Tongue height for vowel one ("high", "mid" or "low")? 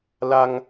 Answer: low